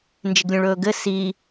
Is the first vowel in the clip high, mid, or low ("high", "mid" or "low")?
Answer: high